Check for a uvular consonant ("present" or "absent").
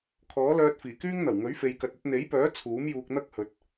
absent